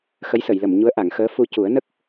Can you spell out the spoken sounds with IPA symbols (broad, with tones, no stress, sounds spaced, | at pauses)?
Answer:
x ə˧˥ j s ə˨˩˨ j l ə˨˩˨ m ɲ u˧˥ ə̯ ʔ a˨˩˨ ŋ x əː˧˥ f u˧ c u˨˩˦ ə̯ n ə˦˥ k̚